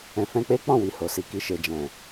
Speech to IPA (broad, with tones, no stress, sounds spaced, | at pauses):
ɛ̃˨ f ɛ̃˧ k͡p e˦ k͡p ɔ̃˦˨ w i˨ h o˨ s i˨ k i˧ ʃ e˨ d͡ʒ ɛ̃˨